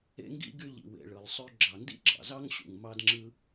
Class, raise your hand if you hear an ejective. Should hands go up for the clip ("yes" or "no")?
no